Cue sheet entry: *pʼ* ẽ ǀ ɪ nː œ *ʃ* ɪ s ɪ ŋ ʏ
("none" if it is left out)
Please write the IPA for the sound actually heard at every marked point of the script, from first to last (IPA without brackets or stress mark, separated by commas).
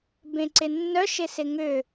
b, ʃ